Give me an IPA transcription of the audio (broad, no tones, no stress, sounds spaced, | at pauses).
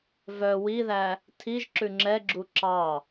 v œ w i ð æ | tʰ i ʒ ǁ ʉ ŋ͡ǁ ɛ ɡ͡ǁ u ǁ ɑ